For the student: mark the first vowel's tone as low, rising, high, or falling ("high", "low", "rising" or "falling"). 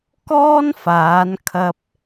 high